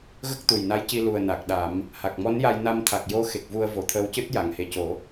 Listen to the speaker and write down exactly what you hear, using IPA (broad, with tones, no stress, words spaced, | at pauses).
ɣə˦˥k̚t̪u˨˩jna˧˥jci˧ lu˨˩ə̯na˨˩k̚ɗa˨˩˦m | ha˨˩k̚mɔ˧˥nja˧j na˧mt̪ʰa˨˩k̚jo˧˥xe˨˩k̚ vu˧ə̯vo˨˩t̪ʰəː˧wcɨ˦˥t̚ ja˨˩˨ŋhe˨˩co˨˩˦